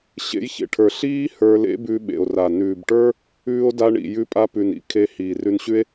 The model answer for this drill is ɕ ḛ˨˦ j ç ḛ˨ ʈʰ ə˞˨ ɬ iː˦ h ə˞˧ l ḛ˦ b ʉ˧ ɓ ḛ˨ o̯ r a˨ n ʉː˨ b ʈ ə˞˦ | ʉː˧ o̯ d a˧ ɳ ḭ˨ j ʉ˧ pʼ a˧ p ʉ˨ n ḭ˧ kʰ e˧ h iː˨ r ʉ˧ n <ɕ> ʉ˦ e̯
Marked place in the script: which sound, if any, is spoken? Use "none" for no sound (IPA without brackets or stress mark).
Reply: ɕ